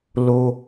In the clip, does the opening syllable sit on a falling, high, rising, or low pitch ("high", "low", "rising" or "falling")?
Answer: high